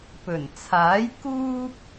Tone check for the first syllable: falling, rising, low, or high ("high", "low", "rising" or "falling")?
low